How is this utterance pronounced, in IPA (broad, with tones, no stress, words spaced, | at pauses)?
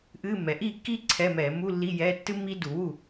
ʔɨː˧˥˧mːɛ˩˧ ʔiː˥˩kːiː˥ ǀʰɛ˧˥˧mɛː˧˩˧ mu˧˥˧lːi˧˥˧ jɛː˧˥˧ tːɨ˥mːiː˥du˧˩˧wu˥˩